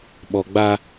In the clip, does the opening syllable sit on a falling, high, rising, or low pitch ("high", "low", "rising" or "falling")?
low